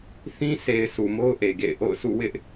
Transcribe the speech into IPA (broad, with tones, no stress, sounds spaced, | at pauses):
θ ĩ˦ sʰ e˨ ɪ̯ s u˨ m o˦ ʊ̯ ʔ e˨ ɡ ḛ˦˨ ɪ̯ ʔ o̰˦˨ ʊ̯ sʰ ṵ˦˨ w ɪ˦ ʔ